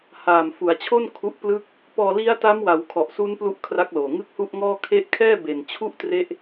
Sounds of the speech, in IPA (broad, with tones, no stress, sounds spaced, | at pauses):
h aː˨˩ m f u˩˦ a̯ t͡ɕʰ o˥˩ n kʰ u˦˥ ʔ p l ɯ˥˩ k̚ | p ɔː˧ l i˦˥ a̯ t a˦˥ m w a˩˦ w kʰ ɔ˨˩ ʔ s u˦˥ n p l u˥˩ ʔ kʰ r a˦˥ k̚ l oː˨˩ ŋ ɯ˥˩ k̚ h u˥˩ ʔ ŋ ɔː˥˩ kʰ e˦˥ ʔ kʰ ɛː˥˩ b e˨˩ n t͡ɕʰ u˥˩ ʔ t r e˥˩ ʔ